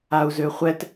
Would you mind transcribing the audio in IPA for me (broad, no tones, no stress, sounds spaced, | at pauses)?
a u̯ z ø χʷ ɛ t